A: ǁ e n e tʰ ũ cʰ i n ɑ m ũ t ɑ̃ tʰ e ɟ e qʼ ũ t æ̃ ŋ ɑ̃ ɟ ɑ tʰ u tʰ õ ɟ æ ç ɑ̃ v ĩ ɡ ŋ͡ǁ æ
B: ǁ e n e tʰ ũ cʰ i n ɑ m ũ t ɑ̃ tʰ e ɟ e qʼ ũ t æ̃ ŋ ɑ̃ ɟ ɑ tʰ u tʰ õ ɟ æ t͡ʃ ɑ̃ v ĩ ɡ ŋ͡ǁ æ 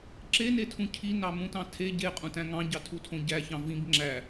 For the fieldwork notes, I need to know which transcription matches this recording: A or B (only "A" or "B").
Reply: A